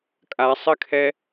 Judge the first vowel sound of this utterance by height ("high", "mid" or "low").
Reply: low